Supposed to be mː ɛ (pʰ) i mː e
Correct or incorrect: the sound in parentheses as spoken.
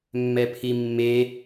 correct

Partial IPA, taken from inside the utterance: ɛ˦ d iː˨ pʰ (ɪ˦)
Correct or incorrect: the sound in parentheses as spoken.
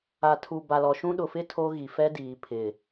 incorrect: ɪ˨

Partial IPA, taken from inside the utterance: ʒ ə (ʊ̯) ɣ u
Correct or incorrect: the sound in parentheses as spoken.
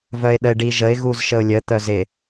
incorrect: ɪ̯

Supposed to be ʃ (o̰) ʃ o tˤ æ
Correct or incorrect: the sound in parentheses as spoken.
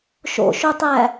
correct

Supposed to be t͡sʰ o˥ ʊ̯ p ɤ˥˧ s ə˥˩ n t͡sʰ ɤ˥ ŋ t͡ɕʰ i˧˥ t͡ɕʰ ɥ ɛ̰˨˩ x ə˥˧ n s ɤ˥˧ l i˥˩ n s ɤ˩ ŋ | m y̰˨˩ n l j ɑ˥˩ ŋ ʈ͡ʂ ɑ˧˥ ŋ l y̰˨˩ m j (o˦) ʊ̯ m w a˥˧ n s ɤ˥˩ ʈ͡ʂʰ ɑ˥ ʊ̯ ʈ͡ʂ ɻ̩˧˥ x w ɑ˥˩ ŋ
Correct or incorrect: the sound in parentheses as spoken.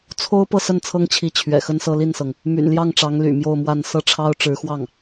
incorrect: o˥˧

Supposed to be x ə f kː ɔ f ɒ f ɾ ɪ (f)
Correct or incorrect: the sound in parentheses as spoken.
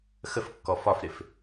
correct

